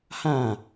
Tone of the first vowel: falling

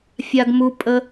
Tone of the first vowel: high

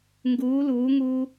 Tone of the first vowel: rising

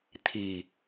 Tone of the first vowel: low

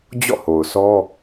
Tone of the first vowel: falling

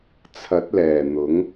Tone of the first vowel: rising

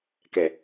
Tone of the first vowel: low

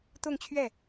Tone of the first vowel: falling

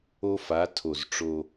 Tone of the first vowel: high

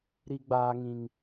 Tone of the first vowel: high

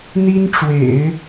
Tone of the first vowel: high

